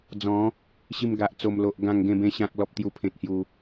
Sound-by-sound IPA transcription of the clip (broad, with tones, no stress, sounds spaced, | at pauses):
d͡z ɔ̃˨˦ | ɕ i˧ m ɡ a˨ ʔ t͡s o˨˩ m l o˨ ʔ ɡ ã˥˧ ŋ ɡ ẽ˥˧ b ẽ˦ ɕ ã˦ k̚ l ɔ˦ p̚ t̪ j u˦ pʰ ẽ˦ t̚ h j u˦